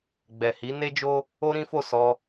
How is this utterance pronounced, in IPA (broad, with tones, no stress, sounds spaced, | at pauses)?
ɡ͡b ɛ˨ h i˨˦ n e˦ d͡ʒ o˦ | o˦ ɾ ĩ˦ f o˦˨ s ɔ˧